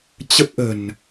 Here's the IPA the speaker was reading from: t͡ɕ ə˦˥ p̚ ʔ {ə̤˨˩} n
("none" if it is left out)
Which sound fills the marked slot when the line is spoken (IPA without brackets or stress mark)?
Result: ə̤˨˩